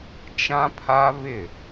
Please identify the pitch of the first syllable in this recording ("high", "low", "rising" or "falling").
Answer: high